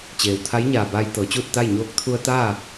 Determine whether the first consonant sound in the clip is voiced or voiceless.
voiceless